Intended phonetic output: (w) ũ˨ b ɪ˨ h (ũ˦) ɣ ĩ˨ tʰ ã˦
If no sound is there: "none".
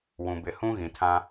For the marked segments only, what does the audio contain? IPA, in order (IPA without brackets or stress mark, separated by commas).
w, ũ˦